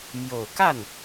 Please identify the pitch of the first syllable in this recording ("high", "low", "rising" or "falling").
low